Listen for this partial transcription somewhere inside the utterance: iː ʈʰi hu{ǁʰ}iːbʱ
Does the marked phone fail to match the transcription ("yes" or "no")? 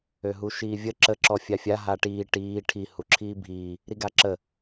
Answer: no